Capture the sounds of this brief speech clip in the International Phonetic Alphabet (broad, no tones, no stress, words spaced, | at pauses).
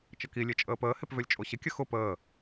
t͡ʃəki lʲet͡ʃʼəːpəː hepvølʲt͡ʃʼoɕɪ kʲəxʊ pəː